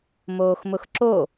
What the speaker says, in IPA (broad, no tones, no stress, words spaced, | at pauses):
moːxmʊxǁo